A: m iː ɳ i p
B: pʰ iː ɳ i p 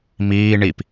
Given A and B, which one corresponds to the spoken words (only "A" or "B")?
A